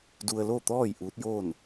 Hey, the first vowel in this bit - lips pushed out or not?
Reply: yes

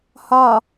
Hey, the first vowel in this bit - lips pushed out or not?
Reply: yes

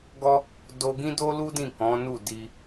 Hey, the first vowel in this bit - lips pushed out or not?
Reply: yes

